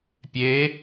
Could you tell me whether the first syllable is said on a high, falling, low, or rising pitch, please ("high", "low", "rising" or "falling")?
rising